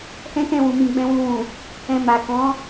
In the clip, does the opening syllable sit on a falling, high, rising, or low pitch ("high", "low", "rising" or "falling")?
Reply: high